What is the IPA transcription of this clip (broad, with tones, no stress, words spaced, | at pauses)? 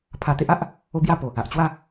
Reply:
pʰa˧t̪e˦ʔa˦ʔ | o˦bja˥˧ po˨˩ | a˨ʔt͡ɕwa˥˧